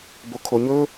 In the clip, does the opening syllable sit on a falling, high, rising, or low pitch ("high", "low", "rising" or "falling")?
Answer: low